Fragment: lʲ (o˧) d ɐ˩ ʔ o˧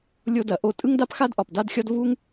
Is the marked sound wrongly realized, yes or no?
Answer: no